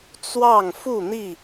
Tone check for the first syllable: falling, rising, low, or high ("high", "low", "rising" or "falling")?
falling